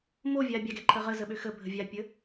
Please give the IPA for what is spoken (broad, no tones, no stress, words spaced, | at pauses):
movʲa bʲaɡɛǃʰə ʁəzəɓø xəbʱə vʲapʲə